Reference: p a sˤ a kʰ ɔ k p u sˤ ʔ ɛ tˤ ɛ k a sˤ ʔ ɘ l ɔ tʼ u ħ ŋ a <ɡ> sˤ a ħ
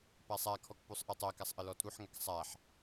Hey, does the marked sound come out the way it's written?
no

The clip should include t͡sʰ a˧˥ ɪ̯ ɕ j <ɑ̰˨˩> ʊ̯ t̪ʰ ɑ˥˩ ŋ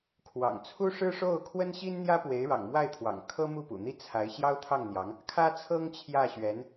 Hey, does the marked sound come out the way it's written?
no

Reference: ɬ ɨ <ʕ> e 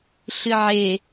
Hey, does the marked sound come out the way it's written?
yes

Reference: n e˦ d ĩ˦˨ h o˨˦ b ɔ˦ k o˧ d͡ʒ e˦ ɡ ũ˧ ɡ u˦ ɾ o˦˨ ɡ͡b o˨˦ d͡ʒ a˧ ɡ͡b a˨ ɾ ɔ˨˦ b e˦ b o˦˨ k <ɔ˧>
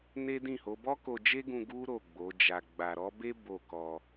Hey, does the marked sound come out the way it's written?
yes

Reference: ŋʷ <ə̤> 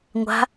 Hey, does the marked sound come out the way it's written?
no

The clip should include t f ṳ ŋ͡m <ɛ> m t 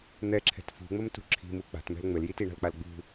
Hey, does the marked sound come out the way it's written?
no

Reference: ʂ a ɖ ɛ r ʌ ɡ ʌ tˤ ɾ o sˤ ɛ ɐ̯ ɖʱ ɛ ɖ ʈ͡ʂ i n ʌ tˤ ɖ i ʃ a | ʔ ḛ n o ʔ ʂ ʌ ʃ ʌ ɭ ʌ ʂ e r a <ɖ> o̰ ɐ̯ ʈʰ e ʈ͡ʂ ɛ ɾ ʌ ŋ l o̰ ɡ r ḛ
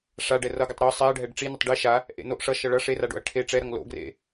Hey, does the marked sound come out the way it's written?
yes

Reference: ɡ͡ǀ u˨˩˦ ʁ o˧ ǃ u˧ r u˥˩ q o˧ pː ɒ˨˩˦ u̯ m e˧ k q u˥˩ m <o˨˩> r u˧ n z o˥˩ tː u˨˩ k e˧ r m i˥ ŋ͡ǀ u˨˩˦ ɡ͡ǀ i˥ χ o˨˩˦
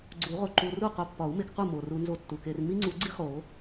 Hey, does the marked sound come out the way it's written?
yes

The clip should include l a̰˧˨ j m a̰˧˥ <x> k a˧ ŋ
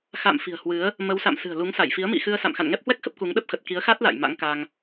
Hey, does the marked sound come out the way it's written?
no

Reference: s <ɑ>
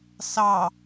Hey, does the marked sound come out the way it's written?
yes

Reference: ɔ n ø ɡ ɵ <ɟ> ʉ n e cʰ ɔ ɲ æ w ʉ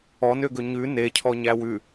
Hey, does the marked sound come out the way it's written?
no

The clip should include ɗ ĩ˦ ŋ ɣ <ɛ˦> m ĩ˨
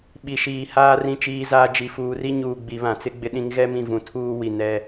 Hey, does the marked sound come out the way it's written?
yes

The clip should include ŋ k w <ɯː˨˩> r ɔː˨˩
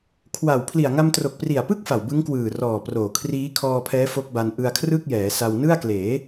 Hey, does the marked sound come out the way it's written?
yes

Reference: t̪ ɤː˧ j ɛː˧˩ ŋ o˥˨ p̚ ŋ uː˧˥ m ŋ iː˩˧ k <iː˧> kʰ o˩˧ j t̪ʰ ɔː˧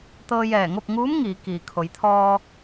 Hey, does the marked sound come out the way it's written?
no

